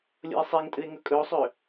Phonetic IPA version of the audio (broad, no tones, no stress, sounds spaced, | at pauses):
lʲ o̰ e̯ sˤ e ŋ tʼ ɨ e̯ ŋ ɵ kʼ ɵ o̯ sˤ ø